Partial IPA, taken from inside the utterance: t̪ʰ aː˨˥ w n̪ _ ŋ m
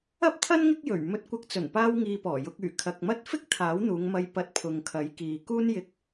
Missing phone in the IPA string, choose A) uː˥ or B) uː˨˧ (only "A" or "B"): B